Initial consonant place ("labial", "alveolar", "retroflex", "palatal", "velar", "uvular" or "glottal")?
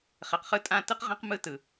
uvular